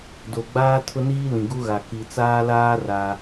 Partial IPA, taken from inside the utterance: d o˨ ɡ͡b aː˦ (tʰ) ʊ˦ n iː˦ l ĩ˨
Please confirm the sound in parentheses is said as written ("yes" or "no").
yes